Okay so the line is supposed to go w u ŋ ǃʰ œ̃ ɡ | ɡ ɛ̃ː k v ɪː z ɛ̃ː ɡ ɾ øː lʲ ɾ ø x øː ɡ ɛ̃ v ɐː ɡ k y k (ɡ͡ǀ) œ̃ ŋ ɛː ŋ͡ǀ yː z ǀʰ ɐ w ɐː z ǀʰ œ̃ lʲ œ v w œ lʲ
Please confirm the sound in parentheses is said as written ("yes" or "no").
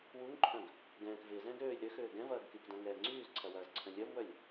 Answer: no